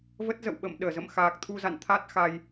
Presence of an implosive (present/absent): present